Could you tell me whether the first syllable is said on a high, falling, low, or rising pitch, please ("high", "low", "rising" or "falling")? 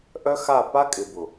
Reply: high